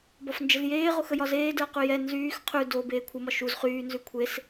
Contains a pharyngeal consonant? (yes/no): no